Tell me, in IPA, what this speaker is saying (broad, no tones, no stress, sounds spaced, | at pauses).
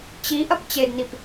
t͡ɕ i ʔ ɐ p t͡ɕ e d n i p